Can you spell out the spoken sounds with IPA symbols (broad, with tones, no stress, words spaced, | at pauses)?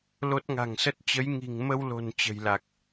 lo˦˥t̚ŋa̤˨˩ŋsə˦˥t̚ t͡ɕə˨˦jŋi̤˨˩ŋmə˧wlo̤˨˩n t͡ɕə̤˨˩jla˨˩k̚